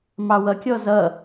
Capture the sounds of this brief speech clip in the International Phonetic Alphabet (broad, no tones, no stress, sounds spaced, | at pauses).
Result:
m ɑ w ʌ kʲ ɔ z ʌ